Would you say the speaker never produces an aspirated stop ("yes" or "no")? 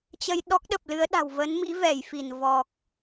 yes